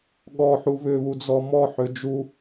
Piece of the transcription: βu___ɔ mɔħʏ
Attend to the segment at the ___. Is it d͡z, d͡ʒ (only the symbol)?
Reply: d͡z